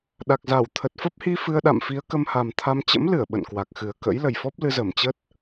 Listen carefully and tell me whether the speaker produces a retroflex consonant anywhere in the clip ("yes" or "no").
no